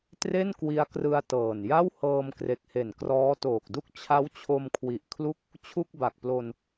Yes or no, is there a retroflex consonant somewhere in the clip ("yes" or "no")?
no